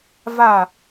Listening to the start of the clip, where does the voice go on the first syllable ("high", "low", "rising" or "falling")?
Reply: falling